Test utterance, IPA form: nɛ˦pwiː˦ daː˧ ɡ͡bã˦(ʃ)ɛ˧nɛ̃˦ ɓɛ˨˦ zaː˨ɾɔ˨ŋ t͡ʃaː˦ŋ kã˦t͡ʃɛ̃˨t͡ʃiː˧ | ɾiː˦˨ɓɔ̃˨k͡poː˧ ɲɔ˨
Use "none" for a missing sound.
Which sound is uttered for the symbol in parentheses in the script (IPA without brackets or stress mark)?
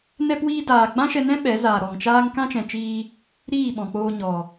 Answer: ʃ